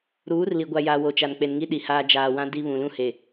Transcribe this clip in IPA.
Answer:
ɾ uː˨˦ r l i˨ ɡʷ a˨ j a˨ w o˨ t͡ʃ a˨ n k͡p e˨ n ŋ i˦ ɗ i˨ h aː˦ d͡ʒ aː˨ w ã˦ d i˦ β ũ˨ l ũ˦ h e˨

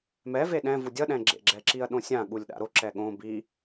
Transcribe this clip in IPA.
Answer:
m ɛ v e ɗ ɛ̃ v u dʲ ʌ ɗ ɛ̃ ɡ͡ǁ ḛ ɡ͡ǁ ɛ ǁ i ɐ̯ ɗ õ sʲ ã ɠ u lʲ ɗ a̰ ɾ o ǁ ɛ ɠ õ b i

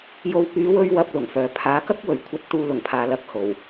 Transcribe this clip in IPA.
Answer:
j o˨ w p yː˨˧ w ɵ˧ ɥ w ɐ˧ p̚ l ʊ˨˩ ŋ f œː˨ pʰ aː˨˥ k ɐ˥ k̚ w ɵ˨˩ ɥ kʷʰ ɐ˨˥ t̚ t̪ uː˨˧ l ʊ˨˩ ŋ pʰ aː˨ l ɐ˧ k̚ h o˨˩ w

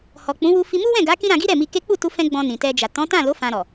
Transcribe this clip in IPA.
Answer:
h ɔ˨ k͡p ũ˨˦ w u˧ f i˧ m u˦ w ɛ̃˦˨ ɡ a˨˦ k ĩ˦ ɾ ã˧ ɡ i˦ ɾ ɛ˦˨ m i˧ k e˦ k͡p u˦˨ t u˧ f ɛ̃˦ ɡ͡b ɔ̃˧ n ĩ˨ t ɛ˧ d͡ʒ a˨ t ɔ̃˨˦ t ã˦˨ l o˨˦ f ã˧ ɾ ɔ˨

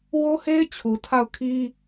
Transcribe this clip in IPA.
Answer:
w o˦ h e˦ ɪ̯ t͡ɕʰ u˨ tʰ a˦˨ ʊ̯ kʰ i˦

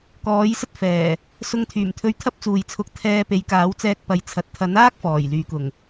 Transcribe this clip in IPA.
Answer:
k ɔː˨˥ j s ɐ˥ t̚ f ɛː˨˩ | s ʊ˧ ŋ t̪ʰ yː˨˩ m t̪ʰ ɵ˧ ɥ t̪ʰ ɐ˥ p̚ t͡s uː˨ j t͡sʰ ʊ˧ k̚ t̪ʰ ɛː˧ p e˨˥ j k aː˨˥ w t͡s ɛː˧ k̚ p ɐ˨ j t͡sʰ ɐ˨ t̚ t̪ʰ ɐ˨˥ n aː˥ k̚ f ɔː˨˩ j l yː˨ k ʊ˨˩ ŋ

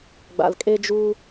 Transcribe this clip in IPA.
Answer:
ɡ͡b a̰˨ l kʼ e˧ d͡ʒ uː˧

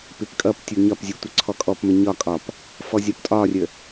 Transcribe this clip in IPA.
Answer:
p ɪ p kʼ ʌ p tʲ u ɲ ɒ p zʲ u tʷ ə ǀʰ ɔ kʼ ɔ p m ə ɲ ɒ kʼ ɒ p | f ɔ zʲ ɒ p tʼ ɒ rʲ ə

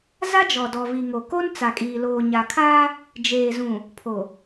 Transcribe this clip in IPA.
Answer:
z a˦ d͡ʒ ɔ˨ d ɔ˨ v i˨ ŋ o˨ k o˦ n t͡s a˨ kʼ iː˨ l oː˨ ɲ a˨ kʰ aː˦ | d͡ʒ eː˨ z ũ˨ | pʰ o˨

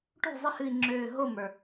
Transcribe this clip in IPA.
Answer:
ʈ o̤˥˩ zˤ ɨ˥˩ h ɨ˧˩ i̯ ŋ͡ǁ øː˧˩ ɦ o˥˩ m ə˞˩

